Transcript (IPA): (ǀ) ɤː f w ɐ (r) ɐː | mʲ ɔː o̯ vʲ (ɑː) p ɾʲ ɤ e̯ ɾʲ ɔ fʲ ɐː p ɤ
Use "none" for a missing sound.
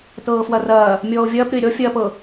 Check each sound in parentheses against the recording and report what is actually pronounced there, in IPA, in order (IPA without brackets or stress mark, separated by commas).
t, r, ɐː